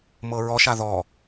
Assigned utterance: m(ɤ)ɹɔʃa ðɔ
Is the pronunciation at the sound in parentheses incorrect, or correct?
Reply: correct